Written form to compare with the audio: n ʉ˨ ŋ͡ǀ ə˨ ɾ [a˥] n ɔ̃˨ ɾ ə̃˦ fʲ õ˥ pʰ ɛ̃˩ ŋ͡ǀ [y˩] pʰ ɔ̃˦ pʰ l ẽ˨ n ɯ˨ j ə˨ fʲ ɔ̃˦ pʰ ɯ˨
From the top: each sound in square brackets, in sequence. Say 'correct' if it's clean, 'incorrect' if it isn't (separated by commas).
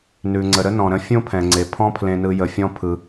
incorrect, incorrect